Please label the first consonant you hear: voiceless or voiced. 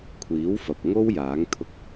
voiceless